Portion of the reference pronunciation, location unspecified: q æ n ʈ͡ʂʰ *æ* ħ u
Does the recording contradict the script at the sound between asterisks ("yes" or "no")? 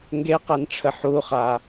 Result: yes